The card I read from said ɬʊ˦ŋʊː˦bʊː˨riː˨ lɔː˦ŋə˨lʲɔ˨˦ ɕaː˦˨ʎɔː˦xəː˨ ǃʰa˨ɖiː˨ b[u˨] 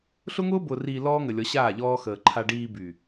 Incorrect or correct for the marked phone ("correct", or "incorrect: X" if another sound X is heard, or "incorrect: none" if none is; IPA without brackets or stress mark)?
incorrect: y˨